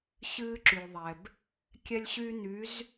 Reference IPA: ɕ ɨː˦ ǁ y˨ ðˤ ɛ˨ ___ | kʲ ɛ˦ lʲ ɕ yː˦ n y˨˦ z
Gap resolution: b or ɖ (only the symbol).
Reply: b